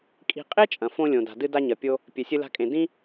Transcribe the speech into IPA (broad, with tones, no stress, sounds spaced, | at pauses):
kʼ i̤˧ qʼ e˥ t͡ʃʼ ɐ̃˩ f õ˧ lʲ õ˩ d a̤˩ d ɨ˧ d a˧ ɲ ɐ˩ pʲ o˧ | pʲ e˩ sʲ ɨ˧ l a̤˧ kʼ ẽ˩ d ĩ˥